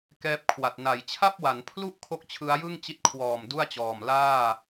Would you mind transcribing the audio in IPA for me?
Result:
k ɛː˦˥ p̚ kʰ w a˨˩ t̚ n a˩˦ j t͡ɕʰ a˥˩ p̚ w a˩˦ n pʰ l u˥˩ ʔ kʰ o˥˩ k̚ t͡ɕʰ ɯ˦˥ a̯ j ɯ˥˩ ŋ t͡ɕ i˦˥ t̚ kʰ w ɔː˨˩ m d u˥˩ a̯ t͡ɕ ɔː˨˩ m l aː˥˩

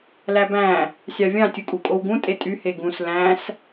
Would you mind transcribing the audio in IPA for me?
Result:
l æ b æ̃ | sʲ ɑ vʲ ɑ̃ tʲ u kʼ u kʼ o w ɡ ũ tʼ e tʼ y h e ɡ ũ s l æ̃ s

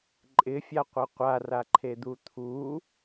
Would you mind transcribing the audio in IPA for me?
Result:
ǃʼ ɪ fʲ a qʷ a qʷ a r a ǃʰ e d̪ u t̪ʰ u

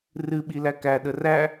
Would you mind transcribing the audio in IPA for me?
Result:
r ɨ ɓ i l æ k æ ɗ ə r æ

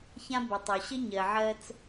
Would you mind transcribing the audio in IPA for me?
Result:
ç ã˦ b ə˨ tˤ o˨ ɕ ə˦ ɲ ɜ˨ ʕ ɜ˦ t͡s

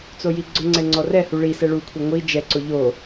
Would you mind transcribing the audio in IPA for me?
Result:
t͡s o j i ɡ͡ǀ ʊ ŋ͡ǀ ɛ ŋ͡ǀ ɔ r ɛ h u ɭ i s ɛ ɭ u kʷʰ e ŋʷ i d͡ʒ ɛ ǀ o ʎ o

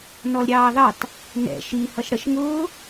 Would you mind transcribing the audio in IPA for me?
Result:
n ɔ l ɾʲ ɑː ð ɑ t | n ɛ̰ ʃ i h ʌ ʃ ɽ ə ʃ ŋ ʊː

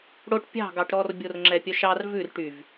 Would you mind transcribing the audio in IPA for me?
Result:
ɽ o ʈ pʲ ɑ̤ ɡ ɑ ʈ ɾ ɔ r bʲ o r ŋ͡ǁ ɛ pʲ œ ʃ ɑ r v ʉ r ʈ y v

